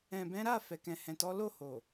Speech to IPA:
ɛ̃˨ b ɛ̃˨˦ ɾ a˦˨ f ɛ˨ k ɛ̃˨ h ɛ̃˨ t ɔ˨˦ l o˦˨ h o˨

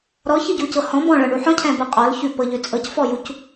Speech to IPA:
ɾ ɔ ç ɨ ɟ u c ɤ h ɔ̃ b ɔ̃ ɭ ɤ ɳ u ħ ɔ̃ cʰ ɛ̃ b ɤ qʼ ɔ l ç ʉ p ɤ ʎ ʉ t͡sʼ ɤ c f ɔ j u c

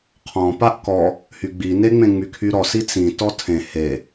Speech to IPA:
qʰ ɔ̃ p a ʔ k ɔ | h y ɡ͡b i n e ŋ͡m ẽ ŋ͡m y kʰ y ɾ ɔ s i t͡s ĩ t ɔ tʰ ẽ h e

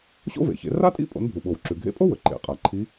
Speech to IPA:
ɕ o̰˥ v ḛ˩˧ ç ḛ˩˧ r a˥ tʼ ḭ˥ pʼ o̰˩˧ n bʱ u˩ ɓ o˩ w ǁ ʉ˩ ɡʱ ḛ˧ pʼ o˥ w ɵ˩ ǃ ḛ˩ qʼ a˩ ǃʰ i˧˥

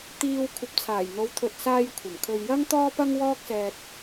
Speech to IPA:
t̪ iː˧ w kʷʰ ɐ˨˥ p̚ t͡sʰ aː˨˩ j n̪ o˨˧ w t̪ʰ ɵ˨ t̚ s aː˧ j kʷʰ ɐ˨˩ m kʰ ɵ˧ ɥ j ɐ˥ ŋ t̪ ɔː˥ p ɐ˥ ŋ w ɔː˥ k̚ s ɛː˧ t̚

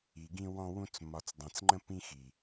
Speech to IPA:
i˨ ɡ ĩ˧ w ɔ̃˧ w ũ˧ t͡s m ɒ˨ t͡s dˤ ɛ̃˨ t͡s ŋ͡ǃ ə̃˧ p ĩ˧ x i˨

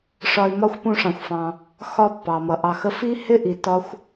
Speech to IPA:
ʂ ɒ˦ ɪ̯ m ɒ˥ xʷ p ũ˦ ʂ ɑ̃˨ xʷ f ɑ̃˨ | x ɒ˦ pː ɑ˩ m ʌ˩ ʔ ɑ˨ x ə˦ f i˥ h ɪ˥ ʔ i˨ t ɒ˥ xʷ

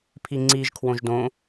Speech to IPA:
pʰ i ŋ͡ǀ i ʒ kʰ w õ ʒ d õ

